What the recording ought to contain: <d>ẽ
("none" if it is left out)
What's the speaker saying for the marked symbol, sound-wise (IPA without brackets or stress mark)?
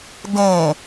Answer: d